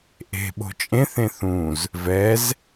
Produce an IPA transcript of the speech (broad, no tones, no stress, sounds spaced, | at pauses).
ʔ e̤ ɓ o̤ t͡ʃʼ ẽ θ ẽ θ ũ z | v ɛ z